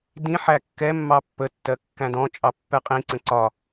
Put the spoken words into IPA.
dĩ ħækːɛ mːɑpːə tːɜkːæ̃dɔ̃ t͡ʃʼɑpːɛqʼĩ ǀə̃ǀɒ

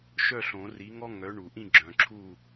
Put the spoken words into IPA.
ʃœ˥˨ɬõ˨˩˦ri˨˥ŋɔ˥ ŋœ˨˥ɳu˨˩˦ʔĩ˥˨ ɡ͡ǁœ̃˨ǁʰu˥˨

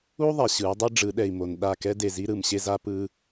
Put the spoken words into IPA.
u˦ ðˤɛ˨ɕɯ˨˦u̯dˤi˦ ɖ͡ʐɯ˨˦ɗɛ˨i̯mo˨n ɗa˦˨ kɛ˦de˨ zi˦ɾɯ˨mɕe˦za˦ pɯ˦

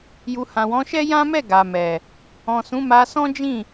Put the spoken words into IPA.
ju˨hã˨wɔ̃˨˦ʃɛ˦ jã˦mɛ˦˨ ɡa˨mɛ˨ | ɔ̃˨sũ˨˦ ma˧sɔ̃˦d͡ʒĩ˦˨

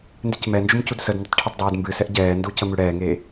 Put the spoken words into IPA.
ndɨcmɛnd͡ʒum cudsədndətˤ ʈʰetˤdˤeːdmbɨsɛʔ ɟɛːndu cəmʉɽɛːŋeː

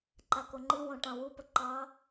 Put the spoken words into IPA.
ǃakoŋ͡ǃɨwõ ʈɑ̃wupə ǃɑ

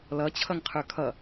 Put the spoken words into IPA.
lʌ t͡ɕʰʌŋqʰə˞kʰʌ

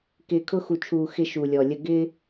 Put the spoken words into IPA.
kɪː˨kʰʊ˦xu˨t͡ʃʰuː˨ xɪ˦ʃuː˨lʲɔ˨lʲə˦ ɡɪː˦

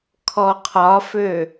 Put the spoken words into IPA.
kʰɔqʰɒfø

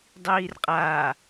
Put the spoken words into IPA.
dˤiːrqʼaː

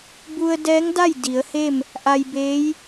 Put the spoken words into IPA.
bu˧ə̯ dɛː˧˥ŋda˥˨j di˩˧ə̯ he˥˨m | ʔa˧jbeː˧˥j

